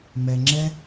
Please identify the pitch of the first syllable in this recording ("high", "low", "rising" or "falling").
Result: low